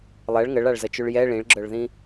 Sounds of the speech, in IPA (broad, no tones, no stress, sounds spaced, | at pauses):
lˠ ɛ ɭ ŋ ə ɭ a ɭ z ə t͡ʃ ʉ ɭ j ɛ ɭ ĩ ɭ ɡ͡ǁ œ ɭ ð ĩ